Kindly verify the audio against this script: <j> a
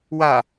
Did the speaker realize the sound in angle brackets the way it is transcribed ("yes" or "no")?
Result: no